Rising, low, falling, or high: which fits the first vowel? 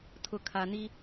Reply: low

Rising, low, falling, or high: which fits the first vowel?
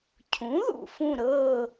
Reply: rising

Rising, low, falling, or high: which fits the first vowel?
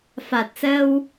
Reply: low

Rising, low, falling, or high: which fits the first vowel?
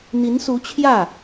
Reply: rising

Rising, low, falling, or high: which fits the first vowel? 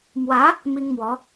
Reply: rising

